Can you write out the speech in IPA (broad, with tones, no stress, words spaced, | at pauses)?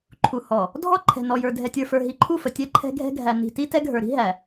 ǃʰu˨hɔ˨ | dʱɔ˦ ǃʰɛ̤˨nɔ˨jə˞˨ dʱɛ˨tʲə˞˨fə˞˨ ɦi˨ǃʰu˦˨fə˨ tʲɛ˦ ǃʰɛ̤˦ ɡʱɛ̤˦ɡʱæ˨ ni̤˨ti˦ tɛ˦ɡʱə˞˨ɾi̤˦ ɦæ˨